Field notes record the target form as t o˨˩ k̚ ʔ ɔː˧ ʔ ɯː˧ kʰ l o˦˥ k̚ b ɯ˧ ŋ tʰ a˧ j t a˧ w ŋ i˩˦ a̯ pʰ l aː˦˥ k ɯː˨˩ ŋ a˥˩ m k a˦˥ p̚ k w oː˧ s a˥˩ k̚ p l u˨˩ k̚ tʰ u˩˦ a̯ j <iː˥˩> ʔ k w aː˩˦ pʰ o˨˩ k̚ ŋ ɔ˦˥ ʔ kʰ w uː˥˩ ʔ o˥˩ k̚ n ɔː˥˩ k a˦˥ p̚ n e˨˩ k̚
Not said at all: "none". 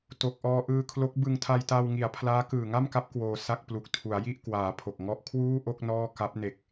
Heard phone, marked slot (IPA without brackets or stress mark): i˥˩